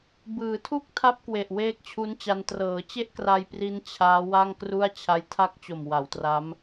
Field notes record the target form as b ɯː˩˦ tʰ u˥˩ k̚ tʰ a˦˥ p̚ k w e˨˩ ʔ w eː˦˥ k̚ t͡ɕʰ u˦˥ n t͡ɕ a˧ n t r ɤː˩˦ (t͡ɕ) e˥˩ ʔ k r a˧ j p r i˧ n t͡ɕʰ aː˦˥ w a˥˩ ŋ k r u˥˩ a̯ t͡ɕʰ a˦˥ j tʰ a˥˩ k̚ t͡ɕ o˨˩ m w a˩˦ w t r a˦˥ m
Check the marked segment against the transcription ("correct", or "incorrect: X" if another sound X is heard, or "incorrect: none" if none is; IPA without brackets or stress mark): correct